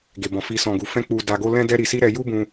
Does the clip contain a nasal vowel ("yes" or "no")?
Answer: yes